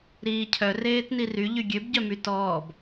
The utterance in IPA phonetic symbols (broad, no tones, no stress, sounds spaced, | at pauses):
ɾ iː cʰ œ r eː t n i r y ʎ y ɡʲ ø b ɟ œ m y t ɔː b